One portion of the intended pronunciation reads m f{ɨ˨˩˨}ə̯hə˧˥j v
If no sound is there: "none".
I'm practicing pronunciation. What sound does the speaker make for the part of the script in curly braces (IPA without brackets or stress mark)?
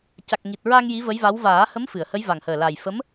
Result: ɨ˨˩˨